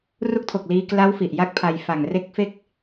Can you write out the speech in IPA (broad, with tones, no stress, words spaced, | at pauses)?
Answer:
ru˦˥k̚tʰo˨˩k̚liː˧ kla˦˥w fi˨˩ʔja˥˩k̚pʰa˧j fa˨˩ŋre˦˥k̚fe˦˥k̚